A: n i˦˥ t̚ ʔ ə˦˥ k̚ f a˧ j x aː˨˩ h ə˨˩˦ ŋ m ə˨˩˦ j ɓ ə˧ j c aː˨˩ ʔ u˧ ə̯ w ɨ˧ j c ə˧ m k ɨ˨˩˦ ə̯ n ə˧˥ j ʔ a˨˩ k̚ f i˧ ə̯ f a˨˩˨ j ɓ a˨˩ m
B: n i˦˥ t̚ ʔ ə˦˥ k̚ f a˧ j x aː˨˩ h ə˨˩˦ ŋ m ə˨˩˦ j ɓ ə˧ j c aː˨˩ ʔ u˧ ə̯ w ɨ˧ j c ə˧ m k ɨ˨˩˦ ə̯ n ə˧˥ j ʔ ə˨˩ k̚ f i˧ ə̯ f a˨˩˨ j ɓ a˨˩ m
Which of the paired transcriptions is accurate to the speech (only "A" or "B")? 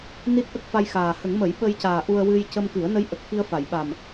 B